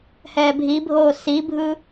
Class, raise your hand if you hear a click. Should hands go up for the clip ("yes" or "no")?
no